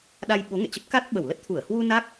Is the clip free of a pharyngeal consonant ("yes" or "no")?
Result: yes